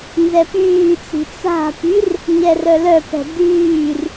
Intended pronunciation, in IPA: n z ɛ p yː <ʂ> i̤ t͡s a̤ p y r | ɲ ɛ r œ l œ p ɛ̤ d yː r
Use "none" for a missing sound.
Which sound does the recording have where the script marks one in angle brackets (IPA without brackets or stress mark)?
t͡s